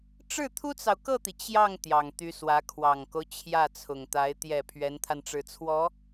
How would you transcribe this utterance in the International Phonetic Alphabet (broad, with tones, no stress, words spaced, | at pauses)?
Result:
ʈ͡ʂɻ̩˥˩ t̪ʰu˥t͡sɑ˨ʊ̯kɤ˥˩t̪i˩ t͡ɕjɑ˥˩ŋ t̪jɑ˨˩ŋt̪y˧˥swä˧˥ kʰwɑ˨˩ŋko˦ʊ̯ t͡ɕʰjä˥˩t͡sʰʊ˨˩ŋt̪a˧˥ɪ̯ t̪jɛ˨˩ pʰɥɛ˧˥nt̪ʰa˧nʈ͡ʂɻ̩˨˩t͡sʰwɔ˧˥